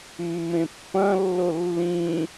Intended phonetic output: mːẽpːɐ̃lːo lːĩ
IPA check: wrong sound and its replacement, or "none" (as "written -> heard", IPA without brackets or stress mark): none